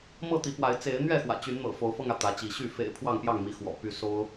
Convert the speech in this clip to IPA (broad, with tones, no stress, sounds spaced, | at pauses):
m ɤ˥˨ t̪ i˨˦ p w a˨˦ ɪ̯ t͡s e˨˦ ɪ̯ n̪ ɥ ɛ˥˨ x w ä̰˨˩ t͡ɕ y˨˦ n n̪ ɤ̰˨˩ f o˨˦ ʊ̯ f ɤ˧ ŋ ä˩ t̪ ä˨˦ t͡ɕ i˨˦ ɕ y˥˨ f ḛ˨˩ ɪ̯ pʰ w ɑ˥˨ ŋ p j ɑ˥˨ ŋ m i˨˦ x w ɔ̰˨˩ p y˨˦ s o˦ ʊ̯